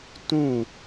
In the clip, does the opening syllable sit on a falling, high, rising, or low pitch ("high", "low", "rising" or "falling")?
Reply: falling